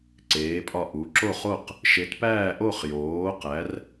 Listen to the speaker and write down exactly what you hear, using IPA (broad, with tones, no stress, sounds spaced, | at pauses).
ǀ eː˨˥ pʼ ɒ˥˧ ʔ u˨˥ ǁ o˥˧ χ o˥˧ q | ʃ e˨˥ t p æː˥˧ ʔ o˥˧ χ j oː˨˥ q æ˨˥ r